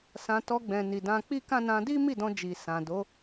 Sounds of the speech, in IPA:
s ã˧ t ɔ˧ ɡ͡b ɛ̃˨ n i˨ d ã˧ k͡p i˦ k ã˦ n ã˧ d i˦ m i˦˨ d ɔ̃˧ d͡ʒ i˨ s ã˨ d o˨˦

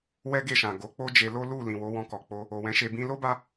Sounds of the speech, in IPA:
w ɛ˦ ɡ e˦˨ ʃ ã˨ ɡ o˨˦ k͡p o˦ d͡ʒ e˧ l o˦ l u˦˨ l ĩ˨ w o˨˦ w ɔ̃˧ k ɔ˨ k͡p o˧ | o˨ w ɛ̃˨˦ ʃ e˧ b ĩ˧ l o˦ b a˧

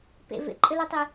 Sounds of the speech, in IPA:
p ḛ v ḛ ǃʼ ɘ l u tˤ i

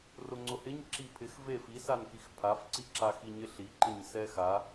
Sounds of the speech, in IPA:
r ʊ ŋ͡ǀ ʊ h ɪ ɲ ǁ i pʰ ɪ x v e f i s a n k i x pʰ a f ǀ i ǁ a x i ɲ ɪ ɬ i ǃ ɪ ɲ s ɛ x a

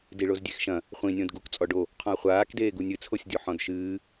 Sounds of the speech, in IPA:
d i ɭ o z dʲ e x ʃ ɐ̃ | χʷ ĩ nʲ õ d ɡ u k t͡sʼ ɔ ɖ o | qʰ ɔ̃ ɐ̯ χʷ aː k d eː ɡ u nʲ ɨ t͡sʰ o sʲ dʲ o ħ ɔ̃ d ʃ ɨː

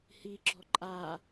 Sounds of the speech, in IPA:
h i ɡ͡ǁ ɔ ǃʼ a

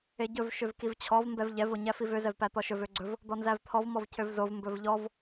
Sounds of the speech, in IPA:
e ɟ ɵ v ʃ ø v k i v t͡ɕʰ ɔ v m b ɛ v ʎ ɛ v o ɲ æ f i v ø z ɛ v p æ t̪ ɔ ʃ ɵ v ø ɡ͡ǀ ɵ v | d̪ ɔ n z æ v t̪ʰ ɔ v m ɔ v cʰ ø v z o v m b ɵ v ʎ ɔ v

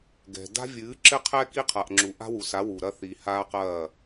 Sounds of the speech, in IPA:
ɡ ɛ̤˨ d a̤˦ vʲ ɨː˨˦ ǁ ɘ˦ qʰ ɛ˦ k i˦ qʰ a˨ ʔ ŋ͡ǁ u˨ ʔ a̤˦ w u˨ s a˨˦ w u˨ ɾ ɐ˦ θ i˨ h aː˦ q ɐː˦˨

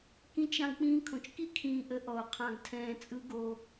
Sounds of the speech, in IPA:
k ĩ˦ t͡ʃ ɾ ɑ̃˦ ɡ k͡p ĩː˦ kʰ õ˨ t͡ʃ k i˦ kʰ ĩː˨ ʔ ə˨˦ ʔ ɔ˨ o̯ qʰ ɑ̃˨ ɡ tʰ ɛ̃ː˨ t͡sʼ ɯ˦ ɡ o˦

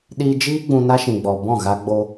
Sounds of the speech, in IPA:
ɗ iː˧ d͡ʒ iː˦ ɡ͡b ũ˧ n a˦ ʃ ĩ˨ ɡ͡b ɔ˨ b ɔ̃˦˨ ɣ a˧ ɡ͡b o˧

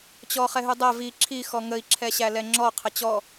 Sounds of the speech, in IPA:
t͡ɕ ɔ χ ɛ ɦ ʉ dˤ æ v i ǁʰ i x ɔ ŋ ə i̯ ǁʰ ɛ ɕ æ l ɛ ŋ͡ǁ ɔ qʰ ə t͡ɕ ɔ

